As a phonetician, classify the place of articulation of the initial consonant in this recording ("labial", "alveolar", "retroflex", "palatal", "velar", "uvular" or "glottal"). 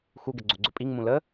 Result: velar